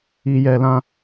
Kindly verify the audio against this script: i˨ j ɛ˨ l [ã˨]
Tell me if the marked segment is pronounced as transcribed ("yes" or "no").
yes